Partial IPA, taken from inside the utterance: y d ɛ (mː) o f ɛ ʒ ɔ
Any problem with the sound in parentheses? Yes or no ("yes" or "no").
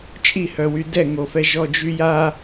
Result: yes